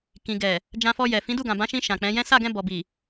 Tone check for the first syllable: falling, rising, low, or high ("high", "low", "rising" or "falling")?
low